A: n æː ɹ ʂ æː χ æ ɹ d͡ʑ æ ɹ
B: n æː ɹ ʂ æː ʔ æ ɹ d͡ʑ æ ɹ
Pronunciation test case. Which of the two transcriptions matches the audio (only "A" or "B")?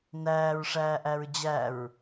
B